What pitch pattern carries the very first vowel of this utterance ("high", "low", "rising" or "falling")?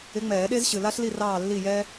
rising